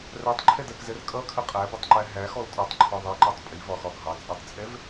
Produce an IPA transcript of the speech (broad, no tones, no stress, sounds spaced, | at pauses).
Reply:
r æ tˤ ǃʰ ɛ d ɜ k z ɛ r kʼ ʌ kʰ ə qʼ æ b ə tˤ ǃ æ ɦ æ x ɔ l tʼ ɔ tˤ ǃʰ ɒ ðˤ i ǃ ɑ tˤ pʼ i v ɒ x ɒ ɡʱ ɑ t͡sʼ ɛ tˤ t͡sʼ ɛ v